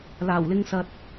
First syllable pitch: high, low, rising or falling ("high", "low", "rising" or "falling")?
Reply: low